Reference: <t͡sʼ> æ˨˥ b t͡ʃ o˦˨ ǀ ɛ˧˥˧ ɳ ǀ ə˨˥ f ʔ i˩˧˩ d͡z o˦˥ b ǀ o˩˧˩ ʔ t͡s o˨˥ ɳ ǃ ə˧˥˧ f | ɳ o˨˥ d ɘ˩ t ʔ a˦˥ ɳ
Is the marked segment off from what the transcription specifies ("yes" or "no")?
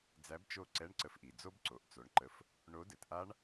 yes